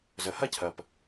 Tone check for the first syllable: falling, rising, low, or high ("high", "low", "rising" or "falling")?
low